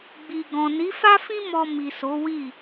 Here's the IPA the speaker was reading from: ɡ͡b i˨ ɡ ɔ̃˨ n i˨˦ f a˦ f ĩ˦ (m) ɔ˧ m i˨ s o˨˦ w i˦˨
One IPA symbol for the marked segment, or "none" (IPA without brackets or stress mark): m